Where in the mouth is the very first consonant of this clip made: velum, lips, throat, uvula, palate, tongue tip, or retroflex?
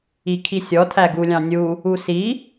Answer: velum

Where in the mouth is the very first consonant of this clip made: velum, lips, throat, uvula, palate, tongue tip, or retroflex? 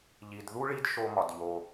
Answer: palate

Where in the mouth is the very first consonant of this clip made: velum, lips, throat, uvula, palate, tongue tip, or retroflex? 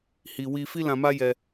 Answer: throat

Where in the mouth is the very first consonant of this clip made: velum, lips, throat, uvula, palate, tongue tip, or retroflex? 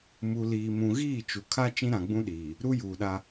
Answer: lips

